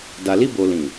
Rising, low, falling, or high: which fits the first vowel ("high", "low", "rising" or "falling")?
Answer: low